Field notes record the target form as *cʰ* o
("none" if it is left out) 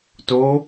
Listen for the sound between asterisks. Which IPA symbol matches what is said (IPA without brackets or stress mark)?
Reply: t